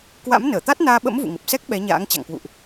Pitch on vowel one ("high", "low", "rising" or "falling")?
rising